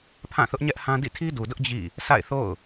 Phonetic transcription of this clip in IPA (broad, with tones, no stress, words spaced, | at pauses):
pʰã˦˨θʊ˦ʔɲɛ˦ʔhã˦ dḭ˦˨tʰi˦du˨dʊ˦ʔ d͡ʑḭ˦˨ | sa̰˦˨ɪ̯θo̰˦˨ʊ̯